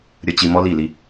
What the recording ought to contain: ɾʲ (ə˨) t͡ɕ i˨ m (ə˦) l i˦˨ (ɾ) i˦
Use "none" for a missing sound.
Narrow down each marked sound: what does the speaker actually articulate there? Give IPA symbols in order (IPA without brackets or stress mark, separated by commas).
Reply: ə˨, ɔ˦, l